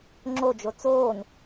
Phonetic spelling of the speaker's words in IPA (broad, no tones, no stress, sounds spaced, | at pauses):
ŋ͡ǁ o d͡ʒ o t͡s oː n